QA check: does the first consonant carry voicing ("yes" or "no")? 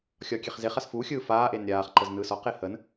no